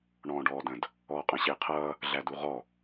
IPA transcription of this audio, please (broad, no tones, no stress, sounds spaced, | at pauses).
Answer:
ɳ ɔ̃ː ɖ ɔː d ə̃ d | ɔː qʼ ə̃ ɕ ɪː qʰ ʌː | ɮ æ d u ʁ ɔ